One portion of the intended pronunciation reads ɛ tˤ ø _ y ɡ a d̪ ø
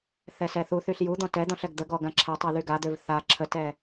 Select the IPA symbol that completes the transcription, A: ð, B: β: A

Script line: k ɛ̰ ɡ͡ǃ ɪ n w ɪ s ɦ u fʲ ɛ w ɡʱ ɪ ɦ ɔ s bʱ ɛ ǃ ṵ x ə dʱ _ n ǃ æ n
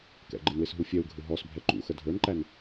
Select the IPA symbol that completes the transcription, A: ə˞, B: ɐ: A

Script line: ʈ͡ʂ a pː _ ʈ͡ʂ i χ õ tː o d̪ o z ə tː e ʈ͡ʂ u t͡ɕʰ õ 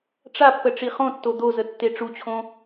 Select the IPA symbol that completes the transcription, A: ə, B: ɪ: A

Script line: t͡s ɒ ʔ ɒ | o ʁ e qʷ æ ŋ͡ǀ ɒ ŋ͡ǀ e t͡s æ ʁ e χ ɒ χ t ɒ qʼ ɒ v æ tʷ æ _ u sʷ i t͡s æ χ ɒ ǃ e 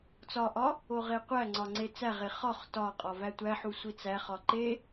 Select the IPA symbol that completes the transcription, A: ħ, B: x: A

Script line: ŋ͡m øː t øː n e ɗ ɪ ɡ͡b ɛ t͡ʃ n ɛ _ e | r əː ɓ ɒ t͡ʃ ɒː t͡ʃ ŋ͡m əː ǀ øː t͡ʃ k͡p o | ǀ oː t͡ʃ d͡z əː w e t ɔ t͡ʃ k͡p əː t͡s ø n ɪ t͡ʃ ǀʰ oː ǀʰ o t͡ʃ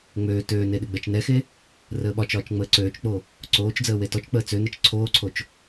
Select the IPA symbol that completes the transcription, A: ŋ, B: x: B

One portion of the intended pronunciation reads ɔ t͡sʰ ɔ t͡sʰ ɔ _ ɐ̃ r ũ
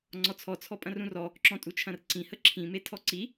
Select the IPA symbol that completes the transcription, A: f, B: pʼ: B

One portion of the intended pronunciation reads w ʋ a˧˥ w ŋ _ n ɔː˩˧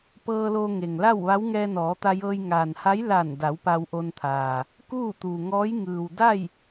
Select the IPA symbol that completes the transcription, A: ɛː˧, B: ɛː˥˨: A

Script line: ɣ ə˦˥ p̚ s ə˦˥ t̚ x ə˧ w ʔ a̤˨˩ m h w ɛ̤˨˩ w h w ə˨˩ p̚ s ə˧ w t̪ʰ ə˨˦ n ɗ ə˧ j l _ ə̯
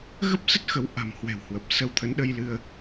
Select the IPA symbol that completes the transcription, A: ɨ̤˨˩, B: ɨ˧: B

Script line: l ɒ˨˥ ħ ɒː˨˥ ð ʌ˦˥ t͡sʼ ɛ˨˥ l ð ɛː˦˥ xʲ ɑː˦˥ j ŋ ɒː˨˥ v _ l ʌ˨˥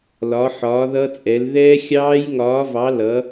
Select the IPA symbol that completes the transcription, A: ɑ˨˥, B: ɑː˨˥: A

